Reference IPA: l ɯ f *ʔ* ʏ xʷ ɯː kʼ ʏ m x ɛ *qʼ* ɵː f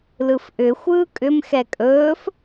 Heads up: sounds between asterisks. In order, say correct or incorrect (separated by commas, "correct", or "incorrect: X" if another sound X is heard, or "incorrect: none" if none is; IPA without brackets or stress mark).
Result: correct, incorrect: kʼ